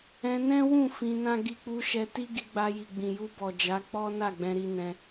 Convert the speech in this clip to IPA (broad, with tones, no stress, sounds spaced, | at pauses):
ɛ̃˧ n ɛ̃˦ w ũ˦˨ f ĩ˧ n ã˦ ɡ i˧ k͡p u˧ ʃ ɛ˧ t i˦ ɡ i˧ ɡ͡b a˧ j i˨ ɡ͡b ĩ˨ j u˧ b ɔ˨ d͡ʒ a˨˦ k͡p ɔ˦ n a˦˨ ɡ͡b ɛ̃˧ ɾ i˧ n ɛ̃˧